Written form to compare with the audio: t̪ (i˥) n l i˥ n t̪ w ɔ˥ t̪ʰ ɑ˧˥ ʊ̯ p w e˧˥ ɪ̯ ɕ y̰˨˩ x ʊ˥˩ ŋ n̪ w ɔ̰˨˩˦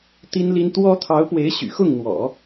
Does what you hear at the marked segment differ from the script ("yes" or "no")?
no